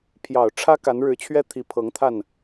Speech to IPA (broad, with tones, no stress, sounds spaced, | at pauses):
pʰ j ɑ˨˩ ʊ̯ ʈ͡ʂʰ ä˥ k a˧˥ n ɻ ɻ̩˧˥ t͡ɕʰ ɥ ɛ˥ t̪ʰ i˧˥ pʰ ɤ˧˥ ŋ t̪ʰ a˥˩ n